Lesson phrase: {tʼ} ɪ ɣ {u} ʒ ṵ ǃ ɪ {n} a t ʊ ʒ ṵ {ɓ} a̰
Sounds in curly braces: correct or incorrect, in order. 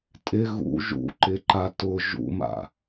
correct, incorrect: ṵ, incorrect: ǃ, incorrect: m

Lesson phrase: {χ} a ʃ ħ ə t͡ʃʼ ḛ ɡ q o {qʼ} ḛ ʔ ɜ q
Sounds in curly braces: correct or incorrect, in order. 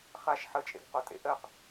correct, incorrect: tʼ

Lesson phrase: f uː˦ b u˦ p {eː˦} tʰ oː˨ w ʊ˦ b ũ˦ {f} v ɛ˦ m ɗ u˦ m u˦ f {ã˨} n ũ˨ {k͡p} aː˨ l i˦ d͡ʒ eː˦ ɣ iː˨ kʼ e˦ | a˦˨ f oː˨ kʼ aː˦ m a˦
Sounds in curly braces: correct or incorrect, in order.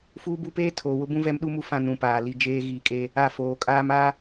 correct, incorrect: none, incorrect: ã˦, incorrect: p

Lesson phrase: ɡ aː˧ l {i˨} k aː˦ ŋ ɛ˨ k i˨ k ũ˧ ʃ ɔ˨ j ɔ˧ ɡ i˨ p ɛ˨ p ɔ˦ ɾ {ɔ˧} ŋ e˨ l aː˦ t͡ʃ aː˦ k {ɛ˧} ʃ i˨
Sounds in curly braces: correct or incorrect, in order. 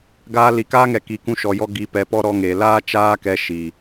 correct, correct, correct

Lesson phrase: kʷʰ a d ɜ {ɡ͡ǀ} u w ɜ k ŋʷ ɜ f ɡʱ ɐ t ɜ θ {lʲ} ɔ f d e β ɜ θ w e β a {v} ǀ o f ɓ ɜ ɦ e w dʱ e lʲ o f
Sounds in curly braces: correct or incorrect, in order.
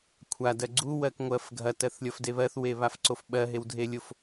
correct, correct, incorrect: f

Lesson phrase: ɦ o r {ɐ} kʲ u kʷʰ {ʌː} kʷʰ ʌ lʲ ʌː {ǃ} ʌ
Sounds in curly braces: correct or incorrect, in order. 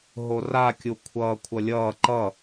incorrect: a, correct, correct

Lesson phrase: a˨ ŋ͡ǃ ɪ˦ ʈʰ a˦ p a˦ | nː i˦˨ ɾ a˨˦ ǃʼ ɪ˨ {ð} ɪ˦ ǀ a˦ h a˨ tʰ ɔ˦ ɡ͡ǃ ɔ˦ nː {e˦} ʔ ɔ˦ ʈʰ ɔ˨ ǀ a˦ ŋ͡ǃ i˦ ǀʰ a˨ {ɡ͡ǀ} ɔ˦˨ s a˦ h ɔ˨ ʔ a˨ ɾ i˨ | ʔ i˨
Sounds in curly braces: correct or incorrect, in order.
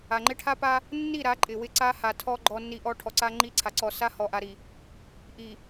incorrect: w, incorrect: i˦, incorrect: ǀ

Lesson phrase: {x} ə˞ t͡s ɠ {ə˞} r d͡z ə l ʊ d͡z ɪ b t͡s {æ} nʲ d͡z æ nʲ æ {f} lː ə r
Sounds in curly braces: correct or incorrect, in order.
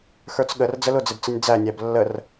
correct, incorrect: ə, incorrect: ə, incorrect: b

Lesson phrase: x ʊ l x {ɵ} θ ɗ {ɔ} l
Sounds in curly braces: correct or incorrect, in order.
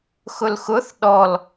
incorrect: ʊ, correct

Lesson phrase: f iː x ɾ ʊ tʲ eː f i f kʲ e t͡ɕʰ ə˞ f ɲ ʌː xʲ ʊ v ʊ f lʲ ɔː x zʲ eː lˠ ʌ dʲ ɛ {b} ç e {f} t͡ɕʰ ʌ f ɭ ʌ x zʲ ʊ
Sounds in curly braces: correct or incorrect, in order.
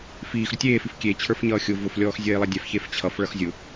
incorrect: f, correct

